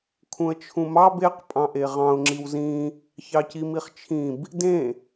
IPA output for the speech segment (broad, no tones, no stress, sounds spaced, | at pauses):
kʰ ũ ə̯ t͡ʃʰ ũ m ɑ b e q pʼ ɑ̃ ʔ e ʁ ɑ̃ ʊ̯ ŋ͡ǁ i w z ĩ | ç ɑ c i m i χ t͡ʃʰ ĩ b | d ẽ